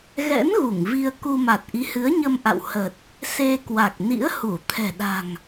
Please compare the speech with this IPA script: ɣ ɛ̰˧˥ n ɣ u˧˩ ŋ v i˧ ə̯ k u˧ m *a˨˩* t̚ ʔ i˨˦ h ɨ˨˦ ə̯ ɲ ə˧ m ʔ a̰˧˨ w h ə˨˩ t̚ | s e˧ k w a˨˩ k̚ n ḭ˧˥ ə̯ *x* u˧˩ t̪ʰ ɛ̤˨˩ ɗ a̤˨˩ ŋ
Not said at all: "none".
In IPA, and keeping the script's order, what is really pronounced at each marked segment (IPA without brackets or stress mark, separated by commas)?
a˨˩, h